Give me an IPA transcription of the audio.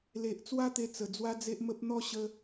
l e˨ ʔ t͡s w a˦ t̪ e˧ t͡s ə˨˩ d͡z w a˦ d͡z e˦ ʔ m ə˦ p̚ n̪ ɔ˦ ɕ ə˦

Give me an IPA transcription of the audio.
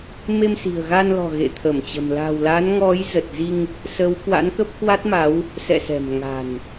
m e˧ m s i̤˨˩ ə̯ ɣ a˧ n l ɔ̤˨˩ ɣ ḛ˧˨ t̪ʰ ə˧˩ m t͡ɕ ə̤˨˩ m l a̤˨˩ w l a˨˦ n ŋ ɔ˨˦ j z ə˨˩ t̚ z i˧ ŋ | s ə˨˦ w k w a̰˧˥ n k ə˦˥ p̚ k w a˦˥ t̚ m a˨˦ w | s ɛ̰˧˨ s ɛ̤˨˩ m ŋ a̤˨˩ n

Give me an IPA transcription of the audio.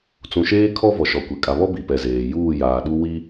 t͡s ũ˨ ʃ eː˦ kʰ ɔ˦ v ɔ˨ ʃ ɔ˨ kʷ e˨ kʼ a˨ β ɔ˦ b i˨ p ɛ˨ z eː˨ j uː˦˨ j aː˨ ɗ u˦ w i˦

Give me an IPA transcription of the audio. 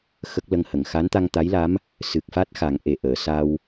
x ə˦˥ k̚ l ə˧ ŋ h ə˨˩˨ ŋ x a˧˥ n t̪ a˧ ŋ t̪ a˧˥ j l a˧˥ m | s ɨ˨˩ k̚ f a˦˥ t̚ x a˨˩˦ ŋ ʔ e˨˩ ʔ əː˨˩˨ s a˧ w

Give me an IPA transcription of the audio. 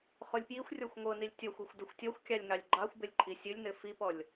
χ o lʲ p j i xʷ rʲ ɔ xʷ ŋʷ ɤ n i lʲ tʲ ɔ xʷ o xʷ d ɤ xʷ tʲ ɔ xʷ kʲ ɑ lʲ ŋ ɑ lʲ ɡ͡ǃ ɑ xʷ b ɘ lʲ ǃʼ i sʲ ɘ lʲ n ɘ f i p ɔ lʲ

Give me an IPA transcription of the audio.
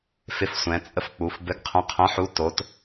f ɪ˦ f sʷ ɛ̃˨˦ t͡sʼ ə˦ f k͡p u˨˦ f b ɘ˨˦ ɡ qʰ ə̃˨˦ qʰ ə̃˨˦ ħ u˨˦ t o˨˦ t

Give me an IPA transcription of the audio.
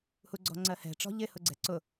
h u ɡ͡ǀ ɔ̤ ŋ͡ǀ ɜ h ɛ̤ ʈ͡ʂ ɔ̤ ʎ ɪ h ʊ ɡ͡ǀ ɛ̤ ǀ ʊ

